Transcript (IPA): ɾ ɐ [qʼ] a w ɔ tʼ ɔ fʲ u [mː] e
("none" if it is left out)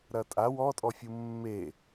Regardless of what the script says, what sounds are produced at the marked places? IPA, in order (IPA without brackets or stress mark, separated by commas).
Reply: tʼ, mː